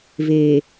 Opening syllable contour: low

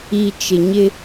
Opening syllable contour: low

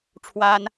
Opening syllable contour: high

